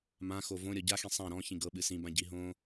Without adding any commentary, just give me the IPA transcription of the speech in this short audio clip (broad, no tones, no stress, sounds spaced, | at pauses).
m ã x o v õ ɾʲ ɔ ɟ a x ĩ sˤ ã ɾ ɔ̃ ç ĩ ɡ ɤ ɓ ɨ s ĩ b ã ɟ i ɦ õ